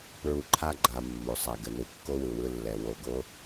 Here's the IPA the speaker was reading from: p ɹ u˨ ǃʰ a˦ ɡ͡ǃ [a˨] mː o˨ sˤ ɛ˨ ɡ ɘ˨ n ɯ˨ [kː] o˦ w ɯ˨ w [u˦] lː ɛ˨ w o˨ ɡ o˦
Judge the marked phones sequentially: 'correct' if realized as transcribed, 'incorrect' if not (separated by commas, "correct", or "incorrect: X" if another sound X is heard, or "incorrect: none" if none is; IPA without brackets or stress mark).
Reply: correct, correct, incorrect: ɯ˦